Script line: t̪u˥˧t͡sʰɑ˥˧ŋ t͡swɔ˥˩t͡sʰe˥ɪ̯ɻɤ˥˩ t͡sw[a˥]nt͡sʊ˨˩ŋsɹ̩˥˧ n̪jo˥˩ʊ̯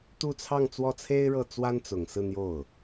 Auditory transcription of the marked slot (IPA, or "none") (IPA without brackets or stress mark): a˥